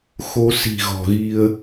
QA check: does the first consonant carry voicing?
no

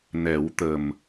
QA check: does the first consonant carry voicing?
yes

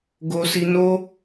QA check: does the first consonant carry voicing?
yes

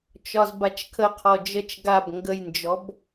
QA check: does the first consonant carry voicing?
no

